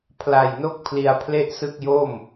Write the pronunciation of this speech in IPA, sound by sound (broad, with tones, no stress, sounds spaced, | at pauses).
pʰ l a˨˩ j n o˥˩ k̚ pʰ l i˧ a̯ pʰ l e˥˩ ʔ s ɯ˥˩ k̚ j o˥˩ m